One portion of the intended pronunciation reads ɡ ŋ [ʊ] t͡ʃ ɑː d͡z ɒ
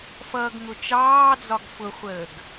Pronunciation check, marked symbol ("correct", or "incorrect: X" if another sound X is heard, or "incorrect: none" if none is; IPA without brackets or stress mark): correct